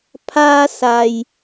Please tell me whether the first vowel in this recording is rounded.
no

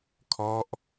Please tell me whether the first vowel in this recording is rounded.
yes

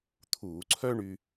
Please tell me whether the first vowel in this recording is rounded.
yes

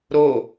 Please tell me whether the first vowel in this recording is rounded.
yes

